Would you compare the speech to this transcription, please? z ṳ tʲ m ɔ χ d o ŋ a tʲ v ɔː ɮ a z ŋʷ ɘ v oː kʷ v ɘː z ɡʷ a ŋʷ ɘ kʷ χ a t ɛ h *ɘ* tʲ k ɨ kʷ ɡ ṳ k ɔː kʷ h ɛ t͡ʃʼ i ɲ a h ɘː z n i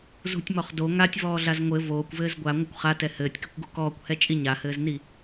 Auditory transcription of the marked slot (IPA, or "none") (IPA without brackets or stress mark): ɘː